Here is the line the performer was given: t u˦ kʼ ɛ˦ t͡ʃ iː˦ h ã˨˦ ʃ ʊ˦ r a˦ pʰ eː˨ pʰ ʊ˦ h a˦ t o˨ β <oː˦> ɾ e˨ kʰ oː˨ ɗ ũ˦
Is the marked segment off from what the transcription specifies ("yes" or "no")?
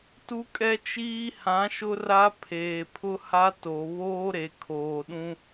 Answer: no